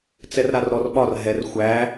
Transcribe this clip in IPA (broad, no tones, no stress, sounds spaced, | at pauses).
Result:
t͡s ɛ r ɾ a r ɾ ɔ r ɓ ɒ r ɦ ɛ r xʷ æ